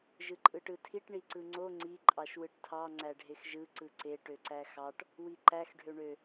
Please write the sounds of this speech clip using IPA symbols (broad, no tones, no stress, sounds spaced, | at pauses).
ʒ ɯ ǃʼ ɯ ʈ ɯ tʰ i ʈ ɳ i ǀ ɯ ŋ͡ǀ o ŋ͡ǀ i ǃʼ ɑ ʃ w ɯ ʈ tʰ ɑ ŋ͡ǀ æ ɖʱ e x ʒ ɯ ǀ ɯ ǀ e ʈ ø ǀ æ x ɑ ʈ | w i ǃ æ x ɖʱ ø ɳ ø